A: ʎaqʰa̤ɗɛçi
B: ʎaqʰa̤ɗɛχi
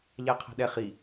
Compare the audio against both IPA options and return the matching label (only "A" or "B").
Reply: B